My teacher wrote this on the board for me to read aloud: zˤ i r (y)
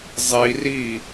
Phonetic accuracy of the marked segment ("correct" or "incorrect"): incorrect